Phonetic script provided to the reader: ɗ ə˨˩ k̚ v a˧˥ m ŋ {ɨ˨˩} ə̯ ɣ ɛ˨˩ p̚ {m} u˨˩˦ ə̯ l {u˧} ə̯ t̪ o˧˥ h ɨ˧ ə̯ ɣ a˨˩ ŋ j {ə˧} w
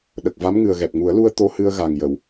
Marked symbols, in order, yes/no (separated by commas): yes, no, yes, no